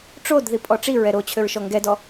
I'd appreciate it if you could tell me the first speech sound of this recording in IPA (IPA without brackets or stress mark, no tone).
ʈ͡ʂ